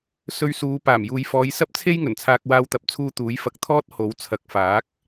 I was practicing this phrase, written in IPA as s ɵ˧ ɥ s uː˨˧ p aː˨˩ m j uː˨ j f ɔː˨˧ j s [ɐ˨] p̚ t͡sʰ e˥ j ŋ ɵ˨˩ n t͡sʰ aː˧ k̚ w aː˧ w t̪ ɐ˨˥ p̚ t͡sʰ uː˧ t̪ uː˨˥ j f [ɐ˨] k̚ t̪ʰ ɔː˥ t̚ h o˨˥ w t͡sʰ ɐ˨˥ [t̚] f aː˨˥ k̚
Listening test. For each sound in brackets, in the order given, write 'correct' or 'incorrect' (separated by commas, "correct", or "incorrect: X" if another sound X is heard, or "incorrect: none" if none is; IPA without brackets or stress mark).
incorrect: ɐ˥, incorrect: ɐ˧, incorrect: k̚